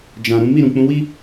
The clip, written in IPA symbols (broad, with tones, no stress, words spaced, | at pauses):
d͡ʒã˨ ɾũ˨˦ mi˦˨ ɾũ˨k͡pũ˨˦wi˦